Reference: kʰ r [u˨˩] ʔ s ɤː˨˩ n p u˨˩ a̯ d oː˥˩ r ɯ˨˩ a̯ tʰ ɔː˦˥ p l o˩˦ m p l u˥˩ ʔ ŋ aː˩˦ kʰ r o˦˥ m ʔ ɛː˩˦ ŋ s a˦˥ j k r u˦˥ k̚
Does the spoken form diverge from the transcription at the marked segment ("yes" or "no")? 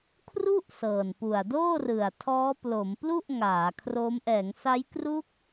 yes